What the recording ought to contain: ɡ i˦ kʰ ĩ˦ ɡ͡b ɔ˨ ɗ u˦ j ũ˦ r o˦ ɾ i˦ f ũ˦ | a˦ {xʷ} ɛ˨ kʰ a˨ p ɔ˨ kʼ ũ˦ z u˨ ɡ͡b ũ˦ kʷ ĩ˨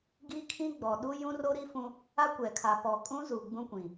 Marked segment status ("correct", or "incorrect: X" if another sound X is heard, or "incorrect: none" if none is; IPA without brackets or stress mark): incorrect: kʷ